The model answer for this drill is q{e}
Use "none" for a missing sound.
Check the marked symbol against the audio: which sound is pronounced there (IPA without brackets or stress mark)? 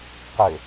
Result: ø